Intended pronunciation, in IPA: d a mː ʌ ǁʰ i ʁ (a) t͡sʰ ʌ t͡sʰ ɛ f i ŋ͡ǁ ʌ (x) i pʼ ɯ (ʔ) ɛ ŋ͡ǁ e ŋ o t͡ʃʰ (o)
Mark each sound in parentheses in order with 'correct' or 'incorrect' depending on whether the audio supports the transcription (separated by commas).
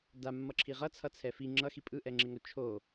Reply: incorrect, correct, correct, correct